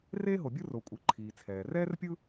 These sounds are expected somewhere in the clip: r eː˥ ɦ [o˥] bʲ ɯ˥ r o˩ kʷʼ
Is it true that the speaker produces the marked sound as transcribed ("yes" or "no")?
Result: no